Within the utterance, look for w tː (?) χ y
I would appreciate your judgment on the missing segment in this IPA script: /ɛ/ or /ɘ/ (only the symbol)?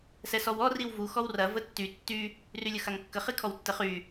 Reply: ɘ